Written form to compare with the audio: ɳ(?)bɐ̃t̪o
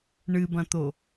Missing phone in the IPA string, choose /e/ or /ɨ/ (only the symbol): ɨ